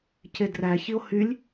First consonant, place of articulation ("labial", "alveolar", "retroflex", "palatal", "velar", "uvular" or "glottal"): palatal